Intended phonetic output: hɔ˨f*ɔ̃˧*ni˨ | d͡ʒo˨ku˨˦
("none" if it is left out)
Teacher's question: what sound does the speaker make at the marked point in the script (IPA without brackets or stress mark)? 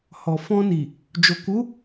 ɔ̃˧